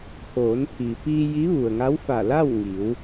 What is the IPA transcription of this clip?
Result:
pʰoː˩˧npʰi˩ piː˧ ji˧˥ʋu˩ə̯ŋa˧˥w fa˧˩ la˥˨wŋi˩˧w

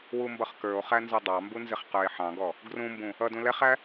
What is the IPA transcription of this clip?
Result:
wumbʌχkə˞o̯χæ nzɔdˤɑmbu nzɪχqə˞e̯ħɑ̃ɡɔ | ɡrũmbũ | ʌdũ lɛχæ

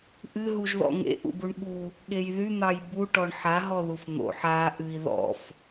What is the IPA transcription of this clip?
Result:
ʔɨ ɦuʒðɔ̰ŋḛ ʔṵbuɳɠu | ɠejðy n̪ɑjbu ʈɔɳħa ɦɔðufn̪o̰ ħa ʔɨi̯ ðɔ̰f

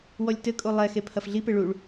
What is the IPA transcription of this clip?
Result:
wɔlʲtɘkʼo lˠɛ xepʰɐfɮipe ɭuɭ

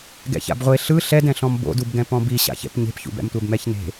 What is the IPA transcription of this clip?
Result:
ɡɛ̰ça̰bʁʷe ɬɯ ɬɛdɛ̃ɬɔ̃m bo̰dubɡɛ̃ pɔ̃biɕa̰çɛ̰p ɲe̤pçṵbɛ̰mtʷɛb mɛçne̤

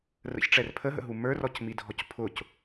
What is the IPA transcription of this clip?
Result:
rə̰çʈ͡ʂɛr pʰəɦə̰ɦu mə˞rɔcmidʱɔc pʰʊc

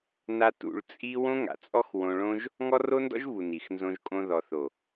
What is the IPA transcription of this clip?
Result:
na˦ tṵ˧ɭt͡sʼi˦ wõ˦ŋa̰˨t͡sʼɔ˦x wõ˧ɭõ˦ʒ | ŋɔ˦ro˦ndɔ̰˦ʒvu˨ ni˨xnzõ˧ʒkʼõ˧ ðɔ˨θo˨

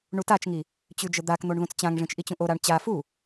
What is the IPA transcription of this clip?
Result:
ɳutat͡ʃŋi | t͡ɕʉd͡ʒəd̪ak n̪oɳðũt͡st͡ɕãŋʐĩt͡ʃ ʔit͡ɕũʔoɾaɳ t͡ɕa fu

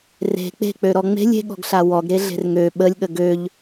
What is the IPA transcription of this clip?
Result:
re̤ k͡pe̤k͡pø ɾɔŋ͡me̤lʲ e̤ɠɔ̤ɡɬa wɔɡɾe ɮe̤rŋø ɓəlʲ ɠəɡøʎ

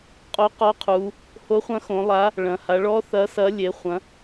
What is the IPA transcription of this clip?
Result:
qʼo˧˥qɔ˧˥qʰu˩˧ | ho˧˥χʷɐ̃˧˥xõ˩˧ lˠa˧˥ | ɭɐ̃˩˧ha˩˧ɭɔ˧˥ θɐ˧˥sɐ˧˥ lʲe˩˧χʷɐ̃˩˧

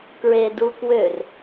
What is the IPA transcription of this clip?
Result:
kɹedukwør

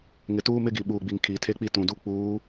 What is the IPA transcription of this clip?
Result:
ŋɪ˨tuː˦mɪ˦ɡi˨ ɓuː˨ɡ͡bi˨ŋ kʰiː˨tʰe˦ k͡pi˦tũ˨du˦ k͡puː˨˦

